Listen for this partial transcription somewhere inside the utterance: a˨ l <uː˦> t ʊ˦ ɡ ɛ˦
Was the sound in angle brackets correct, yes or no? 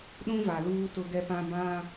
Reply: yes